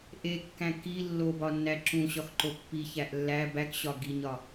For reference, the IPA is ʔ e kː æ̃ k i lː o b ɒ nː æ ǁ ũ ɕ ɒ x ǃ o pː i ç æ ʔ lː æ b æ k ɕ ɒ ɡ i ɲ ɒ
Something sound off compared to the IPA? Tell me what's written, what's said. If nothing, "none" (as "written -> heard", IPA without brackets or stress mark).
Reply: none